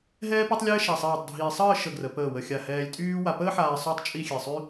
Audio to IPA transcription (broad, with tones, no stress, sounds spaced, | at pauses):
ɦ ɛː˥ p e˥ tˤ lʲ ɛː˥ ʃ a˧˩ sˤ iː˧˩ tˤ dʱ iː˧ sˤ əː˥˧ ʃ ə˧˩ ɡ r ə˩˧ p əː˧˩ w ə˧˩ xʲ a˧˩ h ɛː˧ lʲ tʼ yː˥ w a˧ p əː˥ ħ aː˧ sˤ y˥ tˤ t͡ʃʼ i˥˧ xʲ e˧˩ sˤ y˥